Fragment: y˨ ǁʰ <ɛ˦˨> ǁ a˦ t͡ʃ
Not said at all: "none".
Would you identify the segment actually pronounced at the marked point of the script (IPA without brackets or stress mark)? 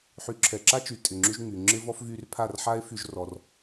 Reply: ɛ˨